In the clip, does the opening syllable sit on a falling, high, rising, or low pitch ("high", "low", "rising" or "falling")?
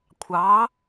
rising